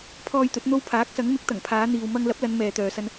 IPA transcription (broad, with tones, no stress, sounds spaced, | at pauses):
pʰ ɔː˧ j t̪ ɵ˨˥ t̚ n̪ o˧ w pʰ aː˨˥ k̚ s ɐ˨˥ ŋ m ɪ˨˥ k̚ t̪ ɐ˨˩ ŋ pʰ aː˨˧ n̪ iː˨ w m ɐ˧ ŋ l ɐ˨˥ p̚ l ɐ˨˧ n m ɛː˨ t̪ œː˨ s ɐ˧ n